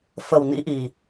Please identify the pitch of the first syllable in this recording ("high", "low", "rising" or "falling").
low